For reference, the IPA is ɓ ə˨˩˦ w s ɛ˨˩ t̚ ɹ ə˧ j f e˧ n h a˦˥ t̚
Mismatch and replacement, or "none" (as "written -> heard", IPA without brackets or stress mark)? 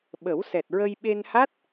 f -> ɓ